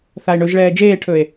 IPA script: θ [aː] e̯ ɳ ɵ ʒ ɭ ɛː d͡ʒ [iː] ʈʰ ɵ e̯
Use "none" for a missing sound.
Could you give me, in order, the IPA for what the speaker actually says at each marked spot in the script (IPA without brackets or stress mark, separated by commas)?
a, eː